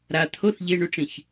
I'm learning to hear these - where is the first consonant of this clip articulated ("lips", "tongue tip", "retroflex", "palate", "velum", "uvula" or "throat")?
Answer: tongue tip